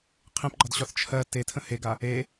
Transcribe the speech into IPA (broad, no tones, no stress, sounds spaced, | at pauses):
qʰ ẽ p ɡ͡ǃ ɒ d ɕ ɒ θ t͡ʃʰ ɜ t e tʰ ə̃ h e ɡ a | e